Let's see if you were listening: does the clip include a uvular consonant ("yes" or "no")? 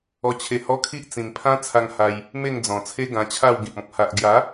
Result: no